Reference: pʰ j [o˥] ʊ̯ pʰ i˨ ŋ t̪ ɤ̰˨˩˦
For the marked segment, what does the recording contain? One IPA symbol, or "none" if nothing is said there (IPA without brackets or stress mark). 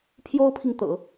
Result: o˥